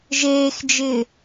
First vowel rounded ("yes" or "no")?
no